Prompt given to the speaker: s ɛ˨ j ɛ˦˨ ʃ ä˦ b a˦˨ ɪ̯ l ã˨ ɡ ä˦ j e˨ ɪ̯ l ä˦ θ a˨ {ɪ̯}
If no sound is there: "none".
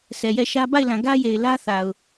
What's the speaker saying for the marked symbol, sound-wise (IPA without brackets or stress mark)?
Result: ʊ̯